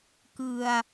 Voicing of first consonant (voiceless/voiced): voiceless